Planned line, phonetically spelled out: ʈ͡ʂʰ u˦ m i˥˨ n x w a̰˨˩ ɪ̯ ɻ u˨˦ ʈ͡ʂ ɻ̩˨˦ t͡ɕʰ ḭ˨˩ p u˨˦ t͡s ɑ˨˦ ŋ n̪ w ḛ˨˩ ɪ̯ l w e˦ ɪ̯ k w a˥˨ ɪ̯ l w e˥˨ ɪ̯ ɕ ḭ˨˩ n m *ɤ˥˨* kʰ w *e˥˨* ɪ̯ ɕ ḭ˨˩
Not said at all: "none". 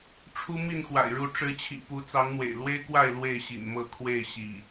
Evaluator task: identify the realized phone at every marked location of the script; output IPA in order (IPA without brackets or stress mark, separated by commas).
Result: ɤ˥˨, e˥˨